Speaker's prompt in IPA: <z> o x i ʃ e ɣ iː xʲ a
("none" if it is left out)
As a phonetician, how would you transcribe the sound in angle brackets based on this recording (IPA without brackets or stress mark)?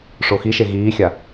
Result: ʂ